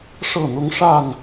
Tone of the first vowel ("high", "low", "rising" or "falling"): falling